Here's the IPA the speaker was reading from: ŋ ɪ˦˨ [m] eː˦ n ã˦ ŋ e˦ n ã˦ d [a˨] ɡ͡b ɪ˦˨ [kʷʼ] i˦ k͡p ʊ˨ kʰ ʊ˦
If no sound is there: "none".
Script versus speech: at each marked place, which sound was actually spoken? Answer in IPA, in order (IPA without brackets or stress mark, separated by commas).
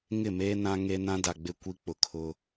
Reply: m, a˨, kʷ